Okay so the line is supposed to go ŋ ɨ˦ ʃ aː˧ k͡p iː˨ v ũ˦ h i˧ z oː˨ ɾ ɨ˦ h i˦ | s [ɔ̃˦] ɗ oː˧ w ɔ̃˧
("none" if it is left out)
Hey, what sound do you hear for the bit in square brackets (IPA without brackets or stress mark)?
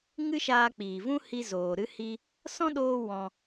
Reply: ɔ̃˦